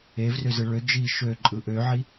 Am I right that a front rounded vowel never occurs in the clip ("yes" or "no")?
no